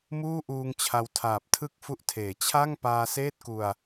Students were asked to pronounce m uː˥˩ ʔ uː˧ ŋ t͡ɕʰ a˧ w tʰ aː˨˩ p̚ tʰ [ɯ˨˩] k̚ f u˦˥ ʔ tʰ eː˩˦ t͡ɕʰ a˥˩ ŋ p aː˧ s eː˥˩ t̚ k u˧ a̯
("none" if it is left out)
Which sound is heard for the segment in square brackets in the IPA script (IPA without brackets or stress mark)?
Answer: ɯ˥˩